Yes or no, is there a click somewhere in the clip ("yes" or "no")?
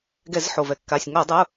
no